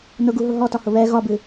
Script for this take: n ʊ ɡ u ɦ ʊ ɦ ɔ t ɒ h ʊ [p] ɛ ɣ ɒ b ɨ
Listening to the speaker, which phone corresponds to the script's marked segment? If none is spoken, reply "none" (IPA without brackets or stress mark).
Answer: β